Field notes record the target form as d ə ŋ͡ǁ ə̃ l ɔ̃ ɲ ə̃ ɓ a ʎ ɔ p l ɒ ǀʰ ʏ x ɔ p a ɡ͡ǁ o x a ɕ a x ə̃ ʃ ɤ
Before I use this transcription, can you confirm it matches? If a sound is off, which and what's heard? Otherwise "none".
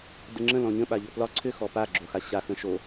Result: ɤ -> o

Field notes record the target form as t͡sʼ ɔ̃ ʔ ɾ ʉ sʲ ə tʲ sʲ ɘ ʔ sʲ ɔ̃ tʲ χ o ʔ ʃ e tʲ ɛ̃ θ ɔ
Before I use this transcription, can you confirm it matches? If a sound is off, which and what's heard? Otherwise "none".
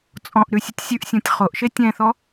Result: ɘ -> ʉ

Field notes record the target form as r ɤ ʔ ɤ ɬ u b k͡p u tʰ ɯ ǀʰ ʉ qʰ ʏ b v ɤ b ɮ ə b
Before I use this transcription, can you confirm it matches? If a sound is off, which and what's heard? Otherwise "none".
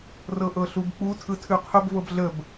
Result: ǀʰ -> tʰ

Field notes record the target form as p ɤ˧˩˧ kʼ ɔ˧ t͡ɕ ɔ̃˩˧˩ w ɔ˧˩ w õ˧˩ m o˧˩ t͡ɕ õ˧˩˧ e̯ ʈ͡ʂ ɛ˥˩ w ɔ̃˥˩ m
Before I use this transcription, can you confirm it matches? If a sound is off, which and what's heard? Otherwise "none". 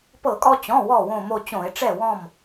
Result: none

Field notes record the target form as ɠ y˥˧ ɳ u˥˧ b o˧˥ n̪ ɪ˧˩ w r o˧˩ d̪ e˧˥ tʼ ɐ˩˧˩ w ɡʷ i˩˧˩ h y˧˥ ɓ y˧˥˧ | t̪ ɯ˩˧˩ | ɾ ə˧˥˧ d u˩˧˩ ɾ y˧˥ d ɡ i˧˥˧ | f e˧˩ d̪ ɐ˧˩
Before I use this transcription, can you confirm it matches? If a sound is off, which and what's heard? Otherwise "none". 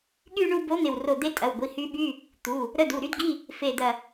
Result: ɯ˩˧˩ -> u˩˧˩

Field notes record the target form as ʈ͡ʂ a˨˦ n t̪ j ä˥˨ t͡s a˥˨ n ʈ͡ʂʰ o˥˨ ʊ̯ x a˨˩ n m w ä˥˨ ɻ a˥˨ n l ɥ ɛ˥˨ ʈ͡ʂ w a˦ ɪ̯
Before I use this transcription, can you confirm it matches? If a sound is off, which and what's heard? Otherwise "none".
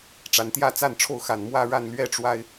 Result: none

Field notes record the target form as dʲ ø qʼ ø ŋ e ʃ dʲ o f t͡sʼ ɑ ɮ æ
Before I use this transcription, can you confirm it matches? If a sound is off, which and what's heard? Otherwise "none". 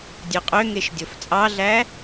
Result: none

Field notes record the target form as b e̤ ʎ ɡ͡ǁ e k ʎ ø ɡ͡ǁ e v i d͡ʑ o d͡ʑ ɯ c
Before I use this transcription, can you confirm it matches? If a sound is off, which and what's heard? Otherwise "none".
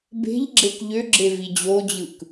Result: c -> k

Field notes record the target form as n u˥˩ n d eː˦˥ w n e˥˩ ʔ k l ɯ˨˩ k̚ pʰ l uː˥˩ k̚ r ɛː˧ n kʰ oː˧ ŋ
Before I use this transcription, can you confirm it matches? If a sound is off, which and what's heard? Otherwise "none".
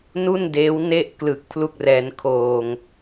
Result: uː˥˩ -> u˥˩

